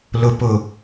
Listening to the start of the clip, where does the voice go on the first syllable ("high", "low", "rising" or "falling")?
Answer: low